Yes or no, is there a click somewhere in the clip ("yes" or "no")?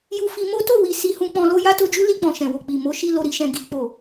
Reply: no